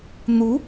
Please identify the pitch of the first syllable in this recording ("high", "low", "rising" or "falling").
rising